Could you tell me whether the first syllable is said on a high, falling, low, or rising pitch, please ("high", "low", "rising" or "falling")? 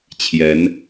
rising